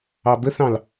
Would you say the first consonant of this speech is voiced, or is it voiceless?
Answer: voiced